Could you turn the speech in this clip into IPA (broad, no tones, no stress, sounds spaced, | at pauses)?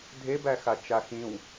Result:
dʱ e b æ x a t͡ʃ a x ĩ w